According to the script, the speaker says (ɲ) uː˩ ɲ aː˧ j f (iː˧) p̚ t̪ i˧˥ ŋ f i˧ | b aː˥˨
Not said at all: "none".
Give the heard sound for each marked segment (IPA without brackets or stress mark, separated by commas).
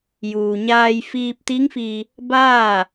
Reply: j, iː˧